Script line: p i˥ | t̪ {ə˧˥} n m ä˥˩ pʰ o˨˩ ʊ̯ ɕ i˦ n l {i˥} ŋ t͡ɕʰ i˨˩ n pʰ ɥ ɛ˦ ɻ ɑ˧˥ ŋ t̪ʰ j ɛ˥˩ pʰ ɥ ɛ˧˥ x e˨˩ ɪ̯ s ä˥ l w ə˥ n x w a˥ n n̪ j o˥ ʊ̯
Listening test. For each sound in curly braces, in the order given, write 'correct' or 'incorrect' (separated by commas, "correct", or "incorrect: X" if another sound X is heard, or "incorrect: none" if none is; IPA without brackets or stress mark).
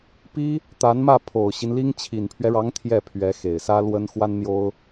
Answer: incorrect: a˧˥, correct